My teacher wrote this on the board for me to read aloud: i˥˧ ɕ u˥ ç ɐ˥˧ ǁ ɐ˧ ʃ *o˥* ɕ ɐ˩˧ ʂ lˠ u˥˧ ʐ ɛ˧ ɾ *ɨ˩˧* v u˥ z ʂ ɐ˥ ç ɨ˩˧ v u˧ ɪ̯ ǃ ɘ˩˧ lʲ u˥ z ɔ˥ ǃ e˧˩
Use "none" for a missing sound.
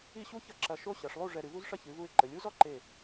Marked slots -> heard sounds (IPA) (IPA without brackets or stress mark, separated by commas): o˥, ɨ˩˧